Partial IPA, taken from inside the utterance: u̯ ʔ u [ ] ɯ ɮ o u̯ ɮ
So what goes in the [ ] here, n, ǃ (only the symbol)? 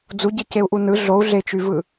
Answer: n